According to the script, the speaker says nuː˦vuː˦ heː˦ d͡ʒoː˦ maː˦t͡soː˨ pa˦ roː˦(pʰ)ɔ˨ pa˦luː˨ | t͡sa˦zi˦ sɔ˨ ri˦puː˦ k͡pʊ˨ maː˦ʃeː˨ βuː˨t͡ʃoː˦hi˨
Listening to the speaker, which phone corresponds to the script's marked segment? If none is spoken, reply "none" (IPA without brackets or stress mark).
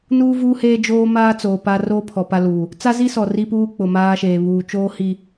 pʰ